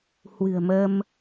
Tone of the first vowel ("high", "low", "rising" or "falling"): low